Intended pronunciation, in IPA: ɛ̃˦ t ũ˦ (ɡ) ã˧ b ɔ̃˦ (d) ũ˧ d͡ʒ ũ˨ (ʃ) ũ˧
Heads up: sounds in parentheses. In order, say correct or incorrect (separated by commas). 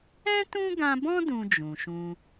correct, correct, correct